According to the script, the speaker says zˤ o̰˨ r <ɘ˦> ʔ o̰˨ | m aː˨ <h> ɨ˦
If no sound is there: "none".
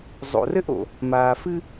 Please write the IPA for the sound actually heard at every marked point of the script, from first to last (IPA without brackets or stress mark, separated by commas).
ɘ˦, f